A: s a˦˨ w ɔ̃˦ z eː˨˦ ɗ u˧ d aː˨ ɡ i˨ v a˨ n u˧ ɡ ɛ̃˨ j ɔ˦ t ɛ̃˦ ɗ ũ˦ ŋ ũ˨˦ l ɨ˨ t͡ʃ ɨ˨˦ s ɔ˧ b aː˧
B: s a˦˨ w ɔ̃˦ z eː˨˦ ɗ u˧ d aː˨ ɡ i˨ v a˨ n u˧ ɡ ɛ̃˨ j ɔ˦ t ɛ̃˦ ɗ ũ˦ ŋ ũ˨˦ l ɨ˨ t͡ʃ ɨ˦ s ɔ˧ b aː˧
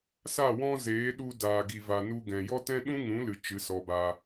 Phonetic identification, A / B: A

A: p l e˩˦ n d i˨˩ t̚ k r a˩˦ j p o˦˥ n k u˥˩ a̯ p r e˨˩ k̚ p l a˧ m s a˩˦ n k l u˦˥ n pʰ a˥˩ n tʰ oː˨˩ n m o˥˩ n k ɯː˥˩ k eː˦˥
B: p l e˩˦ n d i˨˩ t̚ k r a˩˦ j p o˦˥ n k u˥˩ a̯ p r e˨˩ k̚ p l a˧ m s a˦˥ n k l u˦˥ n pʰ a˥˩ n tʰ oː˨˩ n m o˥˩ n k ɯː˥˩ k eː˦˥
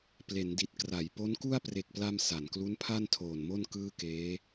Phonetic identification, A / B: A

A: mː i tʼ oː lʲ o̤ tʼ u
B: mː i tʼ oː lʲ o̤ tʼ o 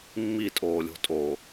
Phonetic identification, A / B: B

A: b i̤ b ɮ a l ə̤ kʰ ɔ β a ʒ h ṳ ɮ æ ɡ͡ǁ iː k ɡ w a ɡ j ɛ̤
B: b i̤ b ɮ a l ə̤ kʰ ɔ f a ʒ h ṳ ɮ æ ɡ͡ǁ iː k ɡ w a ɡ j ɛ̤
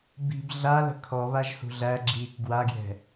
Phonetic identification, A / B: A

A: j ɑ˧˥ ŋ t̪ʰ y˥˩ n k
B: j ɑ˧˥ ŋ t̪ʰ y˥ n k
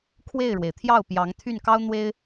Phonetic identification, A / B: A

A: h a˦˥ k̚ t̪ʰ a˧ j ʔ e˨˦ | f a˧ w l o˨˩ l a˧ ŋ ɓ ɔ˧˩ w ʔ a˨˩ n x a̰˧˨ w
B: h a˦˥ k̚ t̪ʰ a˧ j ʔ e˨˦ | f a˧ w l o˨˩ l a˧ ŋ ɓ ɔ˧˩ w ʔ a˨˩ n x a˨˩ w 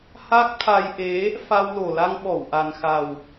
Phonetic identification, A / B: B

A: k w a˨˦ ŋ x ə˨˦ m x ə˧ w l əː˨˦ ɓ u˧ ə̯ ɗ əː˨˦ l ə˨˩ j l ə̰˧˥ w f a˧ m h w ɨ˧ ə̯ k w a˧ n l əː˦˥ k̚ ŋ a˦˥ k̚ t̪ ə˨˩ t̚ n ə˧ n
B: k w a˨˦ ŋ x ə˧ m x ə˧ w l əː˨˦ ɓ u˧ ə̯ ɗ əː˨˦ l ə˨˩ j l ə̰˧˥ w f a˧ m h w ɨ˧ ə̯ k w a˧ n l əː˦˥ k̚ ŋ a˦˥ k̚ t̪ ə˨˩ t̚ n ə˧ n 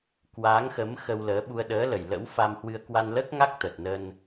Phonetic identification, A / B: A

